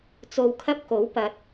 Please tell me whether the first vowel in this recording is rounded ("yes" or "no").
yes